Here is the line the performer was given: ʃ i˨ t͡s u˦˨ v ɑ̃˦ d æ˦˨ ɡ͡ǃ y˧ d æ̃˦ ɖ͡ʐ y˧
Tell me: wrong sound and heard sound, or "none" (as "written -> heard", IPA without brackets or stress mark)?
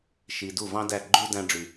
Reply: t͡s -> d